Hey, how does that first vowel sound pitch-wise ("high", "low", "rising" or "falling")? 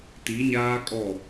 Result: rising